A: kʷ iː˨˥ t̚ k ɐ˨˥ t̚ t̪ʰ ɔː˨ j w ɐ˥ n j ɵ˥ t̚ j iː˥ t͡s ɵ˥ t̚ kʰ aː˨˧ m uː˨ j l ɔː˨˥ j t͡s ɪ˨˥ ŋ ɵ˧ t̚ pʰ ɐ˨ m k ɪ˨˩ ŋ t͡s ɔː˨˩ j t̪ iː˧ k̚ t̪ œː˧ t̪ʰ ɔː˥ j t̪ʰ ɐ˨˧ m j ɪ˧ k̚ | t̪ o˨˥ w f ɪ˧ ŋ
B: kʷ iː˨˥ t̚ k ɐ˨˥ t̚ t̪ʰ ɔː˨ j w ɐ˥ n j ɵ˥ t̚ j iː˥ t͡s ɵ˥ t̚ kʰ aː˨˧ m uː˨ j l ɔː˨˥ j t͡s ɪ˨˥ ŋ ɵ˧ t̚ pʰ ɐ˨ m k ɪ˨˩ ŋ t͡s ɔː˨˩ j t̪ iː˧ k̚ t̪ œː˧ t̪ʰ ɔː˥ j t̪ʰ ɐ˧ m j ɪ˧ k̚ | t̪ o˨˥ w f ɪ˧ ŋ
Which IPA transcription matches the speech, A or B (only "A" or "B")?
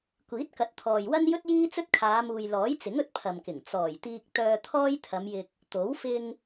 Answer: A